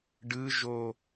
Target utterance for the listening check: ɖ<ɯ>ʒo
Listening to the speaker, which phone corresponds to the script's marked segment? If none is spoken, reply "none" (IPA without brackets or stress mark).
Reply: ɯ